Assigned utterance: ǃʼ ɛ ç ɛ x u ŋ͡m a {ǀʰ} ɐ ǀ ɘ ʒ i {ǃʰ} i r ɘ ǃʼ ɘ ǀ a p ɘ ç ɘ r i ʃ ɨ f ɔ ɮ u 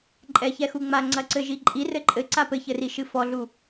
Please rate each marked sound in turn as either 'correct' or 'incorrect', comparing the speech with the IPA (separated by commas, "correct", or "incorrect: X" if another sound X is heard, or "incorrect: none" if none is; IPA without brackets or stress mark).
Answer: incorrect: ŋ͡ǀ, incorrect: ǃʼ